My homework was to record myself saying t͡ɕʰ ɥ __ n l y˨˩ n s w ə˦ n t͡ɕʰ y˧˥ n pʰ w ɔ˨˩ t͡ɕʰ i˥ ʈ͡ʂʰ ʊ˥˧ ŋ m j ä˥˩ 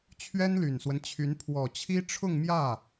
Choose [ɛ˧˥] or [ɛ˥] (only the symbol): ɛ˥